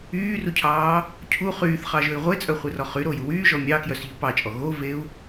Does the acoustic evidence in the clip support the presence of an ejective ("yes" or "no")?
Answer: yes